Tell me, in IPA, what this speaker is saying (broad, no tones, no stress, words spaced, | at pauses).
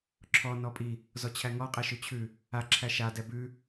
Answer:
ǁʰɔ nɔpʼi | zɔt͡ɕʰæŋɔ qʼɛʃʉt͡ɕʰʉ | a ǁʰæʃa dɛbʉ